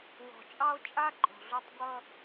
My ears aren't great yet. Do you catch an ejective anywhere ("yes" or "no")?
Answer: yes